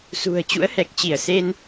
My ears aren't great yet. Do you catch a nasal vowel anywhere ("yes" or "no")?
no